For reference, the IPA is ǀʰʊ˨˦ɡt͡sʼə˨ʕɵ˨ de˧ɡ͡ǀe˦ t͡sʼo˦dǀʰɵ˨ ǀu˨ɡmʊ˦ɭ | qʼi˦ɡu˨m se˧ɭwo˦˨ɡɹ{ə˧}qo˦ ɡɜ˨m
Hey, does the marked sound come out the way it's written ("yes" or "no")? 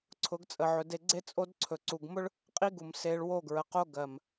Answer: no